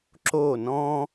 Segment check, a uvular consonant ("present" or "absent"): absent